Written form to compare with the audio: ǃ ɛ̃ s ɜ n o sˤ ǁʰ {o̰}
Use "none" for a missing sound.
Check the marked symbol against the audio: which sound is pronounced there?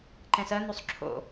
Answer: o̰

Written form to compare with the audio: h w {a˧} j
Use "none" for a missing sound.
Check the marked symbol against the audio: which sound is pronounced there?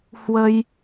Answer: ə˧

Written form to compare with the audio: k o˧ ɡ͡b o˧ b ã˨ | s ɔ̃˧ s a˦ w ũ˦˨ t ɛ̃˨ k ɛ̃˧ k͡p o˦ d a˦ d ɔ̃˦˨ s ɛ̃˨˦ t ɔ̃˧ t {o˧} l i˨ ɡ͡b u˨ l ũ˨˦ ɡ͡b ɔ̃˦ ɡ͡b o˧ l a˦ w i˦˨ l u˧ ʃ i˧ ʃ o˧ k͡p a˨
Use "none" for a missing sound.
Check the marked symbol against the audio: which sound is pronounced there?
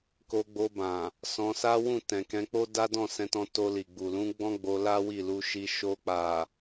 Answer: o˧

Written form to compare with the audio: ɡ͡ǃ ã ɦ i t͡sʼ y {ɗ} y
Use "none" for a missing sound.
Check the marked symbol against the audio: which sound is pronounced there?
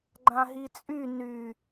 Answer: n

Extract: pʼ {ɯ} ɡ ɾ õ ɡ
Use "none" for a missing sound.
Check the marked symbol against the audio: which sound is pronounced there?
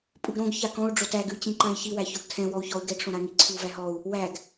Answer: ɯ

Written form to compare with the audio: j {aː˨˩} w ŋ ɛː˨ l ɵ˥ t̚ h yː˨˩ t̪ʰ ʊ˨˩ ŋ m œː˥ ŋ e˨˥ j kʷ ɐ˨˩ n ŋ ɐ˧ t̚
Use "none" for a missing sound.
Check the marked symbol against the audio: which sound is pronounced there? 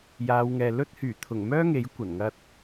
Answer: aː˨˧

